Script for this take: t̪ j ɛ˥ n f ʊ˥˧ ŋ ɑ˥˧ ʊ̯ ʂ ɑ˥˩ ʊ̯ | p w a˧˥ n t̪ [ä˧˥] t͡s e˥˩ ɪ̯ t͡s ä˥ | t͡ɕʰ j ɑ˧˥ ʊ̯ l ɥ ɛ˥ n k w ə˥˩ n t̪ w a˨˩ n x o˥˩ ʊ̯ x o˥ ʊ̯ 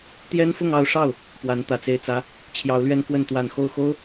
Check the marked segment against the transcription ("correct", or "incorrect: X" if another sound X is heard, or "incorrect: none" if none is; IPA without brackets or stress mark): incorrect: ä˨˩